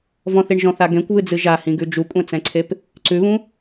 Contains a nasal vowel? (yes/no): yes